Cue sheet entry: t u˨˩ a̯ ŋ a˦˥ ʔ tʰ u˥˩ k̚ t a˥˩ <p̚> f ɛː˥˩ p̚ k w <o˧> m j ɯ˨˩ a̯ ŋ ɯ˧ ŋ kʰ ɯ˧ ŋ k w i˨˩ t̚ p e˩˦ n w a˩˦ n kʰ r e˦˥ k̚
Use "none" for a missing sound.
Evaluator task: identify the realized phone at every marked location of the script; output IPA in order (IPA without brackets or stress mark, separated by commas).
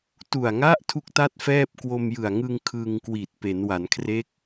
t̚, o˧